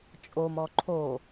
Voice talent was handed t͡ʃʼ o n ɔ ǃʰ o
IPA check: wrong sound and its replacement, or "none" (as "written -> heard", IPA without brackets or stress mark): n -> m